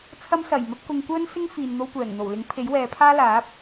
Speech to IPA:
t͡sʰɐ˧msɐ˨˩jmɐ˧p̚ kʊ˧ŋkʷœː˥n sɪ˥ŋfiː˨n n̪o˧wkʷɛː˨˩ŋn̪o˨˩wlɪ˨˥ŋ pʰe˨˥jwɛː˨˧pʰaː˥ laː˨˥p̚

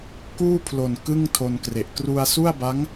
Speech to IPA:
kuː˥˩pʰlo˨˩n kɯ˥˩ŋtʰo˧nkre˨˩ʔ kru˧a̯su˥˩a̯ba˦˥ŋ

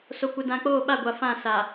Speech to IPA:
so˨kʷɪ˨dã˨k͡poː˦˨ ɓa˦˨ɡʷa˨ fã˦˨sa˨

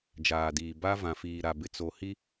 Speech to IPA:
d͡ʒaː˨diː˨ ba˦vã˨ fiː˨ɾa˨bɪ˨t͡so˨ hi˦

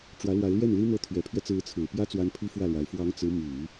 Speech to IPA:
ʈ͡ʂwä˧˥lwa˧˥ɪ̯lɥɛ˥˩nli˥ n̪ɤ˧˥t̪ʰɥɛ˨˩pʰɥɛ˦ t͡sɹ̩˧˥t͡sʰɹ̩˨˩pjä˥ t͡swa˥npʰi˥fwä˥˩lwa˧˥ɪ̯ fwɑ˧˥ŋ t͡sɹ̩˧˥ my˨˩˦

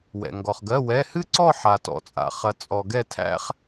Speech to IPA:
wɛ̰˨ ŋɡɔ˨χ ɡɜ˧˥˧wɛ˧˥˧ hɨ˥ǀɔ˥˧ħa˨ tɔ̰˨t͡sʼa̰˨χɐ˨ t͡sʼɔ˨ ɡɛ˥˧tʰæ̰˥χ

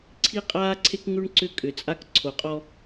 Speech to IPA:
ǀʰi˦qʼaː˦ǀʰe˦kŋʉ˦ɳ ǀʏ˦kʼʏ˨t͡sʼa˦k ǀʰo˨qʼɔ˦

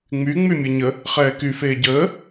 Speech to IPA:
ŋ͡my ŋ͡mymʲəɲə | χɛːky feːɟəː

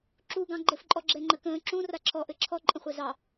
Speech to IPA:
ǁu ɡɑ̃ɡ͡ǃɘfǃʼɔ ɡ͡ǁɛŋ͡ǃəkə̃ː ǁũ raǁʰɔʔɘ ǁʰɔǃʼə̃χʷɛ zɑ

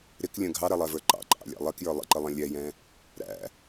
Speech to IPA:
ɾɪklʲə̃ ɡʱɑɾɛlˠɛvə˞ ǃɑ̰ǃʼɑ̰lʲæ̰ lˠɛkjə˞ lˠə̰ǃəlˠɛ̃ lʲɛjɛ̃ | ɾæ̰

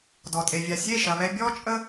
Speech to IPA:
dɔ˨tʼe˨vʲa˨ sʲe˦˨ʃɐ˨ βɛ˧ bʲɔ˧ t͡ʃʼə˦

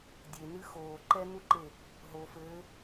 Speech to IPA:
dʲenɨ xoːǃɛnuǃe | ɦo fɘː

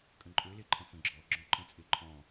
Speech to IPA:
kʼə̃ǃʼøleǃʰə̃ fə̃ɡ͡ǁɔ ɡ͡ǁɔ̃ǃə̃t͡sʼeǃʰɔ̃

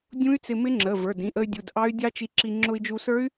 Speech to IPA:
dʲũ˦˥y̯t͡sɪ˧mɪ˦˥ŋ͡ǁə˩˧˩ və˞˩˧˩dĩ˩˧˩ʔə˧y̯dʲu˩˧˩d ʔɑ˦˥y̯dʲɑ˦˥t͡ʃi˧ǁi˧ ŋ͡ǁʊ˧i̯d͡ʒu˧sə˞˦˥y̯

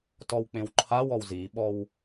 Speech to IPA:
tɔwk͡pẽwǃʰawɔw ziɓɔw

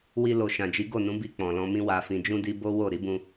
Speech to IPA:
wi˧lo˨ ʃã˨d͡ʒi˨˦ ɡo˦˨nũ˨˦bi˧ k͡pɔ̃˨ lɔ̃˧mĩ˦ wa˧fĩ˧d͡ʒũ˦di˦ bo˦wo˦˨ ɾi˨˦bũ˧

